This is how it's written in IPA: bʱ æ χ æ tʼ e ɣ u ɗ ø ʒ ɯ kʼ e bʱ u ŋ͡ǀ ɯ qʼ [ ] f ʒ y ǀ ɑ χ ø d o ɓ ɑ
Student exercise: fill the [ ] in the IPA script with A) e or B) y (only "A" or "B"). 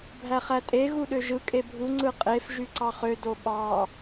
A